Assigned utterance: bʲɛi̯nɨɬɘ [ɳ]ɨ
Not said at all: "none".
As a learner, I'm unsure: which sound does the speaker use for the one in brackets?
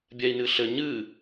ɲ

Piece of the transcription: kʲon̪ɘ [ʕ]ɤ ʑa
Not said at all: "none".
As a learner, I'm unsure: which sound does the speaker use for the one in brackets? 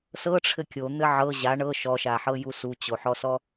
ʕ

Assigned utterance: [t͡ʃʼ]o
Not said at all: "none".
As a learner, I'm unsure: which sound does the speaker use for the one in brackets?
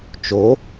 t͡ʃ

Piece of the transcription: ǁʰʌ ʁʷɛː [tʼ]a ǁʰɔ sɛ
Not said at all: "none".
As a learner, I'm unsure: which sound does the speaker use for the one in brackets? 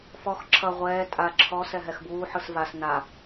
tʼ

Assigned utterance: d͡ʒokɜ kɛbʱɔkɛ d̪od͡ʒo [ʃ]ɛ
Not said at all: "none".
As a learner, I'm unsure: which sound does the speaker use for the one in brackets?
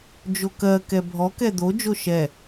ʃ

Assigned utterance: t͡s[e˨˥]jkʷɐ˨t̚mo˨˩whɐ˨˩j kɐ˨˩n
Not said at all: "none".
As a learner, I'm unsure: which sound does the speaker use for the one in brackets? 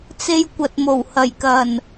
e˧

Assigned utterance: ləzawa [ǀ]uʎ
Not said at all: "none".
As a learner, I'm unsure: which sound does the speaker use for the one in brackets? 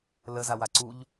ǀ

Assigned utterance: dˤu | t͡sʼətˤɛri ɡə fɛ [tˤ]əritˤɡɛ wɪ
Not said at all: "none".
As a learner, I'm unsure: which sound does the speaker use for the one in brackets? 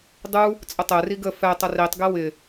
tˤ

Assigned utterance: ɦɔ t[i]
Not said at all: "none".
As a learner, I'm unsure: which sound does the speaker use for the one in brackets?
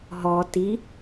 i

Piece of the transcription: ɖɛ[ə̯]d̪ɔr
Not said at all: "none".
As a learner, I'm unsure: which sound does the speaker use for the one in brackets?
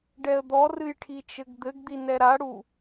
ə̯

